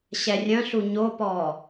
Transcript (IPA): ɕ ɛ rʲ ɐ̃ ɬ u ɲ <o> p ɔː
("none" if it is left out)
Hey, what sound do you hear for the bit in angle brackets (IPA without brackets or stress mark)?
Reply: o